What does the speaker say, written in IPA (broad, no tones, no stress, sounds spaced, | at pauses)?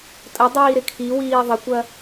tʼ ə dˤ iː ɾ ɪ kʰ i w iː ðˤ ɪ kʷ ɐ